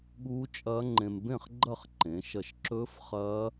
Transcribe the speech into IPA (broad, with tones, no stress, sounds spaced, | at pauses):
ɠ uː˦˥ t͡ʃʼ ɐː˦˥ ŋ͡ǃ ẽ˧ m b ẽ˥˨ χ ɡ͡ǃ ɐ˥˨ χ ǃ ẽ˩˧ ʃ ɐ˧˩ ʃ ǁ ɵː˦˥ f χ ɐː˦˥